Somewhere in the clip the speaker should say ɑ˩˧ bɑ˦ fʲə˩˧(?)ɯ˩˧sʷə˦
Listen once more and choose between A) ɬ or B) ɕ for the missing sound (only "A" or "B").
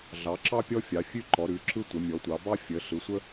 A